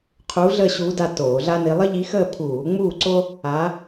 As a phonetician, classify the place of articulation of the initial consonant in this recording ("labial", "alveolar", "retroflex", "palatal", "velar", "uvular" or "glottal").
uvular